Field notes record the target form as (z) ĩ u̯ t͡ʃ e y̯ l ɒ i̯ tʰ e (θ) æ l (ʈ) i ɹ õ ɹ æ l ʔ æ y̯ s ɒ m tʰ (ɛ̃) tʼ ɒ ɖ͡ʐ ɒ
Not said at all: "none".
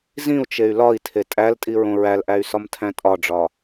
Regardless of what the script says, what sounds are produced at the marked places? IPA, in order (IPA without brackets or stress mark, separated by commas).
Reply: z, tʼ, tʼ, æ̃